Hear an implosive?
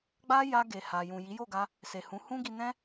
no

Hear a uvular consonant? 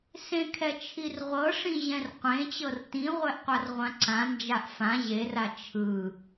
yes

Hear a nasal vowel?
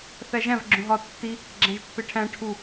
yes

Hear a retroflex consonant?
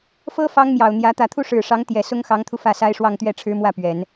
yes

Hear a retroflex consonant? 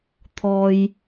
no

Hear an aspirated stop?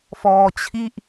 yes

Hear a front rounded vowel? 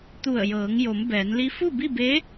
no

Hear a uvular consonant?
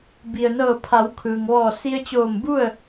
no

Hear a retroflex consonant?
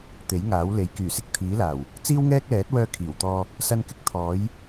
no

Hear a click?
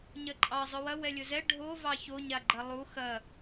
yes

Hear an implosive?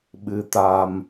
yes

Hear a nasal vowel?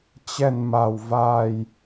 no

